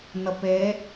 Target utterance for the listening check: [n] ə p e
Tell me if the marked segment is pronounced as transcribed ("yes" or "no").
yes